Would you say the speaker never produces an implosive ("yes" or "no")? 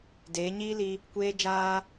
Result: yes